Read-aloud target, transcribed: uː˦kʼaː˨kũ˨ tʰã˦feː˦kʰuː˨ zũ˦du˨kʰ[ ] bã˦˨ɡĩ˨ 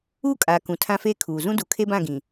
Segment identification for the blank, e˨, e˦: e˦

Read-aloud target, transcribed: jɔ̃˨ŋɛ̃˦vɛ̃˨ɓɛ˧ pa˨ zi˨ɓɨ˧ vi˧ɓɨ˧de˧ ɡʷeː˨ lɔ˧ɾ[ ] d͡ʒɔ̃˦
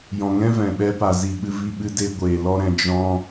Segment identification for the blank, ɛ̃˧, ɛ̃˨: ɛ̃˧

